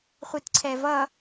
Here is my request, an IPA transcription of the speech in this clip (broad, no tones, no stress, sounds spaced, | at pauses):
χʷ i t ǀʰ ɛ v ʌ